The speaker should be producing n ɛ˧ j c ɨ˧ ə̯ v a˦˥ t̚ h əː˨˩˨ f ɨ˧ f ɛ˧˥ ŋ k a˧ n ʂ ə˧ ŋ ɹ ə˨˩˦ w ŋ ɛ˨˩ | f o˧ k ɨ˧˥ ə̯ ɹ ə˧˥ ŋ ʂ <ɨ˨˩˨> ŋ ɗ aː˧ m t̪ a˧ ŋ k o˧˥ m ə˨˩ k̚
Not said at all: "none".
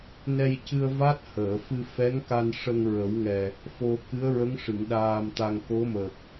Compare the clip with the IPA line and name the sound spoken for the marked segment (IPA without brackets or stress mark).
ɨ˨˩˨